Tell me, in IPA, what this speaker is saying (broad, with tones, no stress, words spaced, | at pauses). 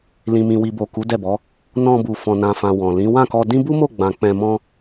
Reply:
lĩ˨mĩ˨wi˨bo˨ ku˨˦dɛ˦˨bɔ˨˦ | nɔ̃˧bu˨ fɔ̃˨nã˨fã˨ wɔ̃˨ lĩ˨˦ wã˦˨kɔ˧dĩ˦ bu˦mo˦˨ ɡ͡bã˧ k͡pɛ̃˧mɔ̃˦